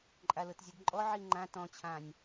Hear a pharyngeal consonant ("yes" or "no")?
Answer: yes